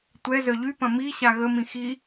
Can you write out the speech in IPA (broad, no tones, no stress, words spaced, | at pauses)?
tʷɛ zœʎypɐ̃ mi ɕaɣəmĩ xi